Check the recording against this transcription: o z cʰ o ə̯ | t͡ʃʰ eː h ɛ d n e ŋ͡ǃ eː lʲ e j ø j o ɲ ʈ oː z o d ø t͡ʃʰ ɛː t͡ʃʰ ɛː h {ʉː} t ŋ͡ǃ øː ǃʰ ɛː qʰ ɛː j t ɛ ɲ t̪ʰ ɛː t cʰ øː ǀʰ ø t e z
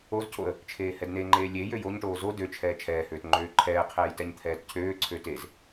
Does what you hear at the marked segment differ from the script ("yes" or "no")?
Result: yes